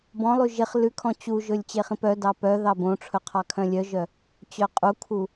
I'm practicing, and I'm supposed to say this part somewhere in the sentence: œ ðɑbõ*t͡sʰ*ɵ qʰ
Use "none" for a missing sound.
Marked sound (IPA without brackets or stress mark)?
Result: ʈ͡ʂʰ